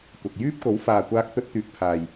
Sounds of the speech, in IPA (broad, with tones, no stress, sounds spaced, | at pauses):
kʷ ɐ˨ k̚ j yː˥ p̚ k o˨˥ w f aː˨ kʷ aː˧ k̚ t̪ ɵ˥ t̚ t̪ yː˧ k̚ pʰ aː˧ j